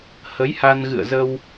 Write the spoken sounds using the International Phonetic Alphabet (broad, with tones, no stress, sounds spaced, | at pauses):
h ə˨˦ j h a˧ n ɣ ɨ̰˧˨ ə̯ z ə˧ w